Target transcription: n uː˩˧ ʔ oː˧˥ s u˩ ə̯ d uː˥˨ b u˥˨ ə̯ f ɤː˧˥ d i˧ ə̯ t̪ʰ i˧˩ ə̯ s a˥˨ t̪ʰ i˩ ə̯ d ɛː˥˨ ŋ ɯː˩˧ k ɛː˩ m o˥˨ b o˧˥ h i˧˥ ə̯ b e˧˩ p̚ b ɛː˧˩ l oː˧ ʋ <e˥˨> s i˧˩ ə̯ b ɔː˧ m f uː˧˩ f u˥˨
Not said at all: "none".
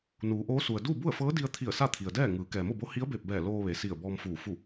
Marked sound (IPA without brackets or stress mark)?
e˩